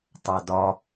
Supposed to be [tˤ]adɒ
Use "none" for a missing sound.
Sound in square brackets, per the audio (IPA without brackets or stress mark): tˤ